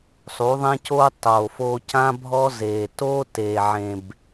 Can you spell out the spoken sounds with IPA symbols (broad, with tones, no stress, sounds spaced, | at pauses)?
sˤ u˨˦ ðˤ ɛ̃˧ c oː˧ tˤ oː˨ f oː˧ c ã˦ bʱ ɔ˦ z eː˨ t oː˦ t eː˨ ʕ ẽ˨ b